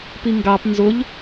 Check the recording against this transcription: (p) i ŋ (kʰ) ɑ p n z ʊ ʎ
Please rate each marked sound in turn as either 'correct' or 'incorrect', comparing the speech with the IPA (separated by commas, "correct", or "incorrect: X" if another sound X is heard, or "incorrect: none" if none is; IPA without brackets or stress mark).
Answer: correct, incorrect: ɡ